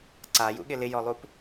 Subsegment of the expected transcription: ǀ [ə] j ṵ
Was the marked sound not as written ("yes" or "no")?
yes